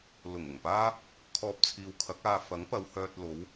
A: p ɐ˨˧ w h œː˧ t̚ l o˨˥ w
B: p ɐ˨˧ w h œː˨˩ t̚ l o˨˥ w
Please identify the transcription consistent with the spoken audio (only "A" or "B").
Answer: A